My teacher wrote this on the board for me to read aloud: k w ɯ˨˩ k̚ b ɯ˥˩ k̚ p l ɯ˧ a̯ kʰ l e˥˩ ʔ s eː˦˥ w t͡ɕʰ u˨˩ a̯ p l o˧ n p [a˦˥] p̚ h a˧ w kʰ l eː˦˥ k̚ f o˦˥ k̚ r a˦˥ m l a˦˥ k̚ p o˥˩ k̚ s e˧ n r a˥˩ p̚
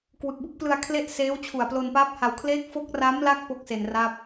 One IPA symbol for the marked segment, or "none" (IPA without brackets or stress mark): a˦˥